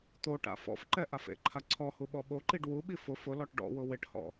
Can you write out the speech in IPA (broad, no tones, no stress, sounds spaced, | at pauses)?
t̪ o ʈ a̰ f ɔ̰ f ǃ ɛ ʔ a f ḛ ǃʰ a ǀʰ ɔ h u ɓ ɔ ɓ o ǃ i ɖ w u ɓ i f ʊ f ʊ l ɔ ʈ ɖ ɔ̰ w ʊ w ɪ ʈ h ɔ̰